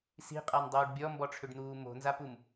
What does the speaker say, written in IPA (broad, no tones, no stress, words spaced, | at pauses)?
si̤qʼandˤuːɖ bʲɔmbɔʈ͡ʂʰʏɖn̪uː mo̤nzapum